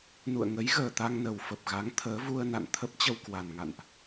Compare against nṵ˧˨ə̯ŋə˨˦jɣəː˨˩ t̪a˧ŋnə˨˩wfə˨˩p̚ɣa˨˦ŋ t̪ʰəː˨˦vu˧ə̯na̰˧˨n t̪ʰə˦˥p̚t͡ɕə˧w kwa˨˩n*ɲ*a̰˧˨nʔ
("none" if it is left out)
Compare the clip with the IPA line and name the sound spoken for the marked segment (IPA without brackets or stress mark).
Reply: ŋ